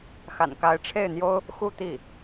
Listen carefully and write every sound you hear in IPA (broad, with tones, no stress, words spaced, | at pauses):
xa̰˨˩nka˧˥ɪ̯ʈ͡ʂʰe˥˩ɪ̯n̪jo˥ʊ̯ | xu˥˧t̪i˥˩